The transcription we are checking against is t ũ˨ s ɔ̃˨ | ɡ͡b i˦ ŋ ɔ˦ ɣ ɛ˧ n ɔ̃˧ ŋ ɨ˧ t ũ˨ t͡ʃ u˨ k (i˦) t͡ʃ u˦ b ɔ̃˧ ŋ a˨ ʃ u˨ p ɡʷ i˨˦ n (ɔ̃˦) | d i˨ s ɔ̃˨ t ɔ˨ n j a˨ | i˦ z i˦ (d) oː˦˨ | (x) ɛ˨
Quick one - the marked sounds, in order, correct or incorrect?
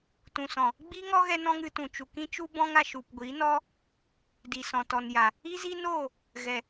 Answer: incorrect: ĩ˦, incorrect: ɔ˦, incorrect: n, incorrect: ɣ

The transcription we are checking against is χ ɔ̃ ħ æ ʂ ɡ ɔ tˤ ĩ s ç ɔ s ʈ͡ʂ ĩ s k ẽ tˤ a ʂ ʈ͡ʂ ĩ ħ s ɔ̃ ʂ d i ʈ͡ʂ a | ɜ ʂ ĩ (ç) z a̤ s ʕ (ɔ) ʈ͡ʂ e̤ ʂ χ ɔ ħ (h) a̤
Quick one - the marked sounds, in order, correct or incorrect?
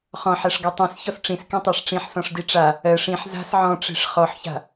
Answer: incorrect: ħ, incorrect: ɔ̃, incorrect: ç

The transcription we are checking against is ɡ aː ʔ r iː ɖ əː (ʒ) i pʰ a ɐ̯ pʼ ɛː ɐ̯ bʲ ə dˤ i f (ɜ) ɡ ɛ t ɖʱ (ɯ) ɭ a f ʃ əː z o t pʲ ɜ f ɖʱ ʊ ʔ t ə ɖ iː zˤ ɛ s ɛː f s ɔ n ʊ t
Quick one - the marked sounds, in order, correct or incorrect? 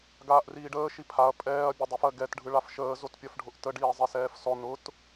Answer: incorrect: ʃ, correct, correct

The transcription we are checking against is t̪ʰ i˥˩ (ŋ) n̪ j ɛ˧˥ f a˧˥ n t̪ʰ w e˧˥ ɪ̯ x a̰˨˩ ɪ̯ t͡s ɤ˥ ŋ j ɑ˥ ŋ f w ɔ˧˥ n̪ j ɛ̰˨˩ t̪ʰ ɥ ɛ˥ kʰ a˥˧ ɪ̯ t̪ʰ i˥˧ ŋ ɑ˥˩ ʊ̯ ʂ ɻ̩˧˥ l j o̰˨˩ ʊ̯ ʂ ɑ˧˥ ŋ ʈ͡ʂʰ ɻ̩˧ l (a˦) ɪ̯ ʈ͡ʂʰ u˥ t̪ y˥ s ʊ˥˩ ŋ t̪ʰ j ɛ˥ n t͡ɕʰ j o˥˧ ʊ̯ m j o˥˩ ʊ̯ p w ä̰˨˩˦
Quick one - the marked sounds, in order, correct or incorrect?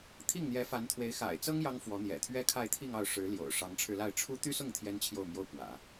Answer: correct, incorrect: a˥˩

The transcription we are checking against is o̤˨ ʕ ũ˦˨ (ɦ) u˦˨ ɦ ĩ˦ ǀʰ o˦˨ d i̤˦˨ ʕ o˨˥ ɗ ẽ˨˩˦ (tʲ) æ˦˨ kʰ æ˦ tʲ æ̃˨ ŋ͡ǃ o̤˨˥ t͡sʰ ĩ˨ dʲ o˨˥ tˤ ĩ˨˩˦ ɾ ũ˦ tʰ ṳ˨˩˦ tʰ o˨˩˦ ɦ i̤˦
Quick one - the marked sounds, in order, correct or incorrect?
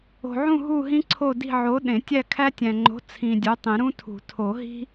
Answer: correct, correct

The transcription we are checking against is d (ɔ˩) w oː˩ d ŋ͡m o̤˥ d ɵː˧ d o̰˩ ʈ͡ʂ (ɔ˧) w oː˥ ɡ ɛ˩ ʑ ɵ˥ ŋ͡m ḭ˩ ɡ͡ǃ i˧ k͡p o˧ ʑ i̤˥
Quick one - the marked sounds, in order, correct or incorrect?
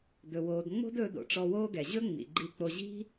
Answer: incorrect: ɵ˩, correct

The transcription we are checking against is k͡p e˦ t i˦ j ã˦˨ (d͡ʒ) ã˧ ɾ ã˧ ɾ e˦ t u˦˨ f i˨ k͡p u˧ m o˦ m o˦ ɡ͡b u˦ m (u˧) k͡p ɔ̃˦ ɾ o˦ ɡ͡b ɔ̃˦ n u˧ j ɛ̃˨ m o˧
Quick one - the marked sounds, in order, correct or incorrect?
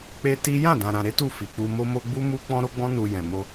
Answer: incorrect: d, incorrect: u˦

